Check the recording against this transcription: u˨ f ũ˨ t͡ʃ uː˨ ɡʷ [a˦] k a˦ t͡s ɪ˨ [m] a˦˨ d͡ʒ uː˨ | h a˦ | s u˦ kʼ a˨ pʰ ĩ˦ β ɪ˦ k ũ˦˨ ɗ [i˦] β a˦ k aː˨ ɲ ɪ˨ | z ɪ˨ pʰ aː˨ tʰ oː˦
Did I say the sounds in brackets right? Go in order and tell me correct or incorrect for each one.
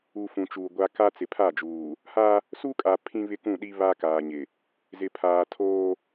correct, incorrect: pʰ, correct

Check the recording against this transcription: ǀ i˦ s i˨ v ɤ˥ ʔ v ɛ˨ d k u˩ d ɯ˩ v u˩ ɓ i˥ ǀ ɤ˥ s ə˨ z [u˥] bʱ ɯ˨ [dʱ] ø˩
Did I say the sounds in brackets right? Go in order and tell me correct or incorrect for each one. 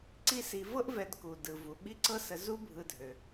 correct, correct

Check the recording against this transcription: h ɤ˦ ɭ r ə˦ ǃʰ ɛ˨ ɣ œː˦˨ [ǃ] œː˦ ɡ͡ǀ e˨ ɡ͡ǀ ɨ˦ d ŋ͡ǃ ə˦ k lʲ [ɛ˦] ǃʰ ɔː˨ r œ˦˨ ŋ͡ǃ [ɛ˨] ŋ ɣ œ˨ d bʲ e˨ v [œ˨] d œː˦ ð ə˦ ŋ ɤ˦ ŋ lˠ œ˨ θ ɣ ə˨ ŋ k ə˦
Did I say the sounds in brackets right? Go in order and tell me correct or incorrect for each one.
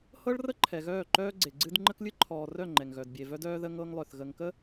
correct, incorrect: ɨ˦, correct, incorrect: œ˦

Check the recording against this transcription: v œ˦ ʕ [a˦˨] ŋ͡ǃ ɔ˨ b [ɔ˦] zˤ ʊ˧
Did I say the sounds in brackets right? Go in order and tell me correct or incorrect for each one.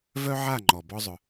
correct, correct

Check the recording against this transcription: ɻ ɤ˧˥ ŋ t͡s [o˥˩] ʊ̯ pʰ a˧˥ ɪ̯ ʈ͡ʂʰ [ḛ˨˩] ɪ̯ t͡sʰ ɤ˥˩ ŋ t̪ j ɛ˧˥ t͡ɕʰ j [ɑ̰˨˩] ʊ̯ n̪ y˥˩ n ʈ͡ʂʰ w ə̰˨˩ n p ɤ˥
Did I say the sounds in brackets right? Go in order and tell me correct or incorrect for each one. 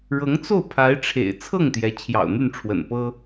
correct, correct, correct

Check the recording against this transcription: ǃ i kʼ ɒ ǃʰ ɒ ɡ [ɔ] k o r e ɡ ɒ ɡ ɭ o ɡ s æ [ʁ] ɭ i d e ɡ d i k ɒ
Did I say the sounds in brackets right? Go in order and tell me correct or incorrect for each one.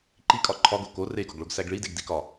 incorrect: o, incorrect: ɡ

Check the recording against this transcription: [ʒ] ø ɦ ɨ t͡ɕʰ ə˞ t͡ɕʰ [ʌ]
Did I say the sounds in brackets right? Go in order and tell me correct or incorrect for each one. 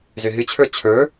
incorrect: z, incorrect: ə˞

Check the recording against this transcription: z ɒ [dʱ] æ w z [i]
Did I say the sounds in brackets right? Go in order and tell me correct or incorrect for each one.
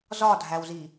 correct, correct

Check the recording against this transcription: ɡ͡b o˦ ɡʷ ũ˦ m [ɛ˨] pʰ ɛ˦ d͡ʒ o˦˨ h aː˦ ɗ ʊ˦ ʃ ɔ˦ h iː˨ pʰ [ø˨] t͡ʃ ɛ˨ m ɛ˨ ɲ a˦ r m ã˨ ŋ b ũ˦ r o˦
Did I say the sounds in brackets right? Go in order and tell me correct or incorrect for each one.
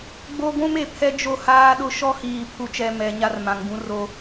incorrect: e˨, incorrect: u˨

